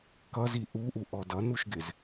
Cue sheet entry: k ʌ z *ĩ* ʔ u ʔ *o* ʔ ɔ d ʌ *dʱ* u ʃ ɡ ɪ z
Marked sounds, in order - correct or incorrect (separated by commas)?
incorrect, incorrect, incorrect